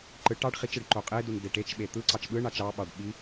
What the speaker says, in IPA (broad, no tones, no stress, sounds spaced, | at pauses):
ǃ ɯ ʈ ɑ ɖ χ i t͡ʃ ɯ ɖ ǃ o qʼ e d u n d e ʈ e t͡ʃ ɓ e t̪ ɯ ǀ ɑ t͡ʃ ɓ ɯ ɳ ɑ t͡ʃ ɑ ɓ ɑ ɖ ɓ i